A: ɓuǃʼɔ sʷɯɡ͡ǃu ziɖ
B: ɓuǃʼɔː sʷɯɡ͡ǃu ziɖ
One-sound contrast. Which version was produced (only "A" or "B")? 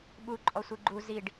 A